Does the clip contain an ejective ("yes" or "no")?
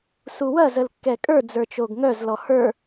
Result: yes